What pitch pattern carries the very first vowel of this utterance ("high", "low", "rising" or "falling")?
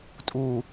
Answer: low